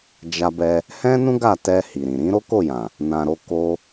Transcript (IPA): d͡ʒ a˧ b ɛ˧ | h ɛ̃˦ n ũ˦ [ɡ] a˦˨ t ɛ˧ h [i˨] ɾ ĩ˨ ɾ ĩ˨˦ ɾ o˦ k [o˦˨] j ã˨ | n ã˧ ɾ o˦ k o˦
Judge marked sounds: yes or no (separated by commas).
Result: yes, yes, yes